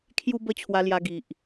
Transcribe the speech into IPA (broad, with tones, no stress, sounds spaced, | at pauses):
kʰ j u˧ b ə˧ t͡ɕʰ w a˧ l j a˧ ɡ i˨ ʔ